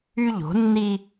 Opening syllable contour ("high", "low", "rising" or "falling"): high